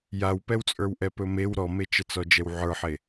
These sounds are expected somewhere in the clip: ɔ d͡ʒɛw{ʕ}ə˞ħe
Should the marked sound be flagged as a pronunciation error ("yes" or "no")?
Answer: no